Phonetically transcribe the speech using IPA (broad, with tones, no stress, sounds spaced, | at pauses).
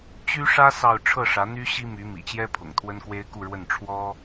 t͡ɕ y˥ ʂ ä˥ s ɑ˥˧ ʊ̯ ʈ͡ʂʰ ɤ˥˩ ʂ ä˧˥ n̪ y˥ ɕ i˥ m y˧˥ m ḭ˨˩ t͡ɕ j ɛ˥ pʰ ʊ̰˨˩ ŋ t̪ʰ w ə˥ n k w e˥ ɪ̯ k u˥˧ ɻ w ə˥˩ n ʈ͡ʂʰ w ɔ˥